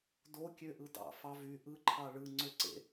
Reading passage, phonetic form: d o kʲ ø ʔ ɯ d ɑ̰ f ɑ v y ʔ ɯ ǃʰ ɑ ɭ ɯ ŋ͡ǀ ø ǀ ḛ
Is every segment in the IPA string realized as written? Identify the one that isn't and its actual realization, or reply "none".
none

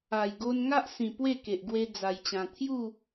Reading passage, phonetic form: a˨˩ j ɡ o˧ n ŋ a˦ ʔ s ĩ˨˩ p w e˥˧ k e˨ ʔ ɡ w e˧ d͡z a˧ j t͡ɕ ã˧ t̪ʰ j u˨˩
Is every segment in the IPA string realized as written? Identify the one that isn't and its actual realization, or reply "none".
u˨˩ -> u˥˧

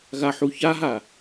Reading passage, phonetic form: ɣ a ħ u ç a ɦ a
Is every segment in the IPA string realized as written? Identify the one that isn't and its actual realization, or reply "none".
none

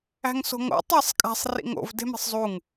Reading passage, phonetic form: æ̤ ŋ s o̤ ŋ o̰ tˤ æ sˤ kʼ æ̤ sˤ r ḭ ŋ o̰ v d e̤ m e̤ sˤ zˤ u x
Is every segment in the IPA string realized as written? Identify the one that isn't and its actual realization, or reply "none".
x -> ŋ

